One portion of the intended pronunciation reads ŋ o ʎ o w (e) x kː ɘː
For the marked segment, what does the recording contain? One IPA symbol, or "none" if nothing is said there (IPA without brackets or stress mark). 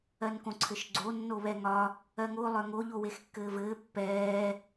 e